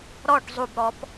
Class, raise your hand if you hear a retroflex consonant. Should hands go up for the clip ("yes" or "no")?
yes